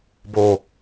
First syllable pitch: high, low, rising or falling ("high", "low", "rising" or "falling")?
low